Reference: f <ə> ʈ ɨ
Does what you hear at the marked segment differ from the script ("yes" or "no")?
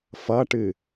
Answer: yes